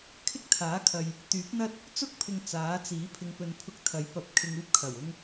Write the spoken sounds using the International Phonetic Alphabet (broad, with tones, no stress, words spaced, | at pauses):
kʰɪ˥k̚t̪ʰaː˨˥kʰɐ˨j | t̪yː˨˥p̚n̪ɐ˥t̚ | t͡sʊ˥k̚pʰɪ˨ŋ t͡saː˨˥t͡siː˨˥ pʰɪ˨˧ŋpɵ˨npʰʊ˧k̚ t̪ʰɐ˨˥jpɐ˨p̚ kʰɪ˧ŋuː˥p̚kʰɐ˨˩w ʊ˧ŋ